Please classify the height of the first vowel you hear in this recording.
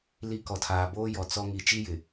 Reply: high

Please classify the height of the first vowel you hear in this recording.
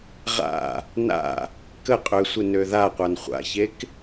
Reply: low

